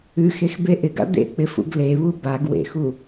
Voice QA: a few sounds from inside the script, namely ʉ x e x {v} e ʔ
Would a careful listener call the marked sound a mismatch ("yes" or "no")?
yes